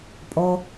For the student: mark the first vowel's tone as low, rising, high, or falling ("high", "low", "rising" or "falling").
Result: high